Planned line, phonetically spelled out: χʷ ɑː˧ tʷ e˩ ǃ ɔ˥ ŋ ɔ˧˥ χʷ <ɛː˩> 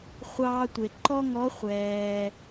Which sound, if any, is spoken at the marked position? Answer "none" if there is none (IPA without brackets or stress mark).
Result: ɛː˩